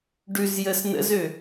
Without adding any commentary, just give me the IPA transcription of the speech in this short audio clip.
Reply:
ɖʉzjəs nə̰zø

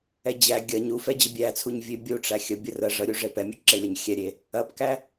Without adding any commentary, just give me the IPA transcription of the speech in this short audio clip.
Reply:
ɛd͡ʑæ ɡʲɐɲ ufɛd͡ʑə bʲæt͡sʰuɲ vʲebʲu ʈ͡ʂæxʲə bʲərə ʐəɾʲu ʐepɛmʲuǁe lʲɐɲxʲɛɾʲe | ɐpkæ

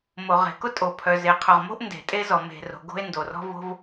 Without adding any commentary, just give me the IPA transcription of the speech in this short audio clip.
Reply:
mo˩ ʁe̤˩kʊ˥ tʼo˩pʰœ˩ ze˩qʰʊ˩ʁmo̤˥ʔ nde̤˩ tʼe˥zɔ˩ me̤˩ro̤˩ ɡo̤˥e̯ndo˩rɔ̤˥vo̤˥v

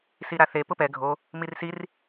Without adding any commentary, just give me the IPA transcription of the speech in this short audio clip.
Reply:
siɾaθe pʊpɛ ɡʱo | mirsir

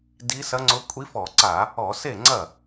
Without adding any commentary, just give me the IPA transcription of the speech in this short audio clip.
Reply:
di˧˥sɐ˧˥ŋ͡ǀʊ˧˥ kʷʼi˧˥fɔ˧˩˧ǀa˧˩˧ | ɔ˧˩˧se˥˩ŋ͡ǀɐ˥˩

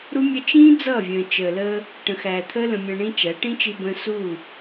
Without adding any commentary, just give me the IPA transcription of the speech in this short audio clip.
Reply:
ɾu˦mʲə˦ t͡ʃĩː˦ d͡zʌː˦˨vʲə̃ː˨ t͡ʃəː˨ləː˧ | ʈə̃˨xæː˨t̪ʰəː˦ lə̃˧mʲə̃ː˧ɳĩ˦t͡ʃæ˨˦ ʈĩ˦t͡ʃi˧bə̃ː˧ su˦˨

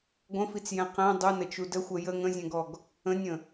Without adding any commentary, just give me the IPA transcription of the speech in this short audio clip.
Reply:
ɡʷə̃fit͡sjɛ̃ qɛ̃ dˤunət͡ʃu dəxʷɛ jə ŋə̃zʲɛ̃ɡɔɡ | ə̃nʲə̃

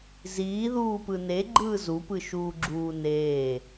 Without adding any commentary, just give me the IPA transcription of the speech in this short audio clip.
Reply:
ziːðuːpɯ ne ɡ͡ǃɯːzu pɯʃuːɡ͡ǁuːneː

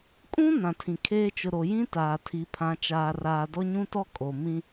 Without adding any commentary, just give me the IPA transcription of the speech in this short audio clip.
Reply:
kʼũ˦ nã˨tʰĩ˨kʰeː˦ t͡ʃʊ˨ɾo˨jĩ˦ taː˨tʰi˨˦pʰã˨˦ t͡ʃaː˨raː˨dɔ˦ ɲũ˦tɔ˦ kʼo˨mĩ˦

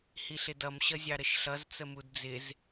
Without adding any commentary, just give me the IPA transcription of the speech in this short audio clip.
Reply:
hiɬɪdʌm ɕʌzʲɑɾəʃɬʌz t͡səmudd͡zɪz

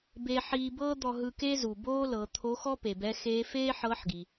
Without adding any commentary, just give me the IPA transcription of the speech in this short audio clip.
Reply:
beː˧ħiː˧bɤː˥ d̪ɔ˧ɦɯ˧ke˥zu˩ boː˥lɤ˩˧ t̪ʰo˧˥xɔ˥ pe˩bɛ˧˥xeː˧˥ feː˥ħɤ˧˥ħɡi˩

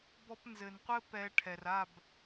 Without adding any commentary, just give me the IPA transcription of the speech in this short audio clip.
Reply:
bɔ˧pnzɘ˨nqʷɘ˦ pɛ˧ ʈʰɛ˨ra˦˨b

